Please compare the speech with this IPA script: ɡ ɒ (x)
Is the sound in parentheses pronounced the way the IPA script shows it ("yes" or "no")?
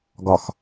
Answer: yes